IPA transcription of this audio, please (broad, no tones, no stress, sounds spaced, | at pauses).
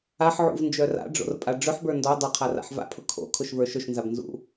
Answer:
a ħ ʕ ṵ v n d͡ʒ œ r a̰ ɖ͡ʐ o̰ r pʼ a ɖ͡ʐ ɵ ħ b ə˞ n d ɔ dˤ ʊ qʰ a r a̰ ħ v a̰ pʰ ʊ kʰ o̰ kʰ ʊ ʃ v ə˞ ʃ ɵ ʃ n z a b n z ṵ